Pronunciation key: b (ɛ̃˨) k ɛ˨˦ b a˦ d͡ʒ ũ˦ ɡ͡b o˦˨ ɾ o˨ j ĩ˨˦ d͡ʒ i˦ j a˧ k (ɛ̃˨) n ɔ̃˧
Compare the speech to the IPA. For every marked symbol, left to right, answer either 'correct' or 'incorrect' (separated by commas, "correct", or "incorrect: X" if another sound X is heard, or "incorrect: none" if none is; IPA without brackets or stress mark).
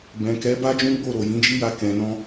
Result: correct, correct